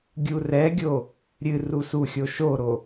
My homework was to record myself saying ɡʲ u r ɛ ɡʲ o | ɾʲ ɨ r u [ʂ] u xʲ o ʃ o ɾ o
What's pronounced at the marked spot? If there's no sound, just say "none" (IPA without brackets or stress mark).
s